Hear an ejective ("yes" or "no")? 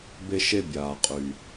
yes